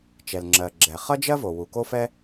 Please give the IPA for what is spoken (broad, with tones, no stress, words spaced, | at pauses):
t͡ʃɛ˩l ŋ͡ǁɜ˩ ɡ͡ǁɛ˩ χʌ˥d͡ʒɜ˥vo˩ wu˩ko˥fɛ˥